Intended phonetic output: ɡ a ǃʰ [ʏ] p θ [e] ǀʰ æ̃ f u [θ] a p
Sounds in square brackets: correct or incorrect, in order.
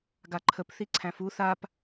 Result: incorrect: ə, incorrect: i, correct

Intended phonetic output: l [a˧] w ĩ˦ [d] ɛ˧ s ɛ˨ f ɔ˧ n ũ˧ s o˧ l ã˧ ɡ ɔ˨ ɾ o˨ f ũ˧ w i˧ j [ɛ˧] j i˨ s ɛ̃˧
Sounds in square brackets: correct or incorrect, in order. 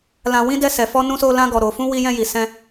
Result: incorrect: ã˧, correct, incorrect: ɛ̃˧

